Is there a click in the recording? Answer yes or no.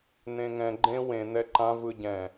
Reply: yes